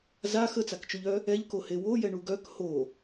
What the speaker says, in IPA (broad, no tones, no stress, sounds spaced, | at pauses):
z a x ə t͡s a k t͡ʃ o ʎ œ | ɛ ʎ k o h e w o j ɛ ɳ u ɡ œ k h o